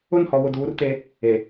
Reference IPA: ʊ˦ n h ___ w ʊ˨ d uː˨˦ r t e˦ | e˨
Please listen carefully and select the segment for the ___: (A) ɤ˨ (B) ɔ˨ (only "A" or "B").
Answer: B